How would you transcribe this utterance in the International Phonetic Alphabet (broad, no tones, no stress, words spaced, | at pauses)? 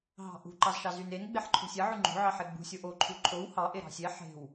ɦɑ̤ʔṳ ǃɑzʃɑzynen ɡ͡beħǃʰo̤sʲe ʕʉŋ͡ǃo̤ ʕɑħeɡ͡bṳ sʲoʔo ǃʰʉǃʰow hɑ ʔeɾɑ̤sʲe ħe̤w